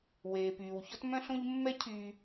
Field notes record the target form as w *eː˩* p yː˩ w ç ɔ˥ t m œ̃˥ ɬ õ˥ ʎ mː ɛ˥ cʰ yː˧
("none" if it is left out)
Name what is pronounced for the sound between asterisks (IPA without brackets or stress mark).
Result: eː˩